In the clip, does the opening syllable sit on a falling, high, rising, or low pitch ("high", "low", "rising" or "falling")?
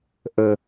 low